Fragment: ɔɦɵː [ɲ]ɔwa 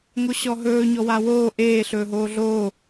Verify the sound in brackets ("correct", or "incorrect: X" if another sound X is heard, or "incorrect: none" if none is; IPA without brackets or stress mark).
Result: correct